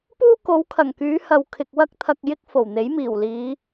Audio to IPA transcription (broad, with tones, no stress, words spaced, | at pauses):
puː˥ko˨˧wkʰɐ˨˩ŋkyː˨˧ hɐ˨wkʰɪ˨k̚ wɐ˥k̚t̪ʰɐ˧k̚jɪ˥k̚ fo˨˩wn̪e˨˥jmiː˨˩wliː˨˧